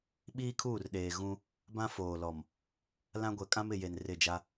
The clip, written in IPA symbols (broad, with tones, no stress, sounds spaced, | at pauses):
ɓ iː˦ kʰ uː˦˨ r ɗ eː˨ ɣ ũ˦ | b ã˦ f oː˨ l ɔ˨ m | l ã˦ ɡʷ ɛ˨ kʼ ã˦ m ɪ˨ j e˨ n r ɪ˦˨ d͡ʒ a˦